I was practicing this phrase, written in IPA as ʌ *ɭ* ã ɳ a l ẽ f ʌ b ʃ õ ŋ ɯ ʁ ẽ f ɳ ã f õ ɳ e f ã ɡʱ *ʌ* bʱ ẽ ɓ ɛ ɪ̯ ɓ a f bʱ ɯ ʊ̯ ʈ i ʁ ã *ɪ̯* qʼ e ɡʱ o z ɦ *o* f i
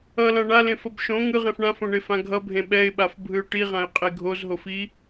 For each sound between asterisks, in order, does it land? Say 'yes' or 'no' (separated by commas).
no, yes, yes, yes